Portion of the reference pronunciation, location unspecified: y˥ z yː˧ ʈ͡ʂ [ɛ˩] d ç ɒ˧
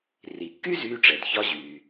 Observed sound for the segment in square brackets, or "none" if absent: ɛ˩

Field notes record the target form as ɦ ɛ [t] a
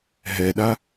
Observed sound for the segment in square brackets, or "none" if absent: ɗ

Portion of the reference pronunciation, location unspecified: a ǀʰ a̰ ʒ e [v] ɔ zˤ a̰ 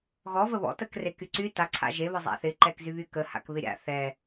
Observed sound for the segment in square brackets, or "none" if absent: β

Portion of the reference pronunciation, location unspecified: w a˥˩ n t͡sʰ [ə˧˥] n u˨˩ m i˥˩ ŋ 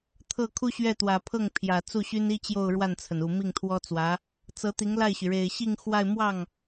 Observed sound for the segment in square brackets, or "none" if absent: ə˩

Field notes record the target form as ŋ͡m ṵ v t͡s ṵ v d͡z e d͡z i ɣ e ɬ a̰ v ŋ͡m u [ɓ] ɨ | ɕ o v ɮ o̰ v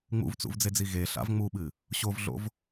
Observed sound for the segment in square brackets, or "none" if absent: ɓ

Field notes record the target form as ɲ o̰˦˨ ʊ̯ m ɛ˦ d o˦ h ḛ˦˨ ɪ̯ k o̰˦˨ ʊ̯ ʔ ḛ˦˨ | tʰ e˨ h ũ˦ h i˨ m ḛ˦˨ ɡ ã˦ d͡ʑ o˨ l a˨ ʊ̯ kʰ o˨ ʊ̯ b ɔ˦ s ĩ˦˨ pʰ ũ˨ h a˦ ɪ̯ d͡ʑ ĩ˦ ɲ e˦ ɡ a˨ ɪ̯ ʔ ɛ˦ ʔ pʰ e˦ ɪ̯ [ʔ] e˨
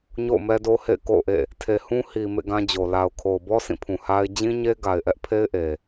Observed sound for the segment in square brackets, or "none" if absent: ʔ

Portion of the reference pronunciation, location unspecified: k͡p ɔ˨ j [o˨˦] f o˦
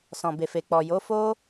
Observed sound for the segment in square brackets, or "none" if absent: o˨˦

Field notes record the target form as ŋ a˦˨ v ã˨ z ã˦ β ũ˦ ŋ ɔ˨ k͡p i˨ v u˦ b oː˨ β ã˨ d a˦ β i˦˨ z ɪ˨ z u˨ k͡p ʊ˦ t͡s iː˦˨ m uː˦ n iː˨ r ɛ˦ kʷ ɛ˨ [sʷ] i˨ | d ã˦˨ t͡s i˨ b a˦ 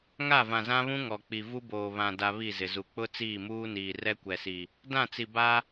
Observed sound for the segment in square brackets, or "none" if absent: s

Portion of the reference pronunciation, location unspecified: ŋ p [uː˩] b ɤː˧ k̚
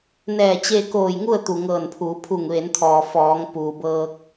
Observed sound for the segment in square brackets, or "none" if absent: uː˩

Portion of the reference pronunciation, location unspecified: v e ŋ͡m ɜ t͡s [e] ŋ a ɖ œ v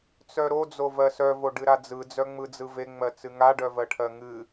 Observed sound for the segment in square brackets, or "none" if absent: ɨ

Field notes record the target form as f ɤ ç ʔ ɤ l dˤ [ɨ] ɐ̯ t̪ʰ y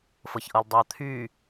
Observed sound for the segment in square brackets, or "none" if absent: y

